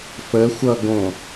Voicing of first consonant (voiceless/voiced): voiceless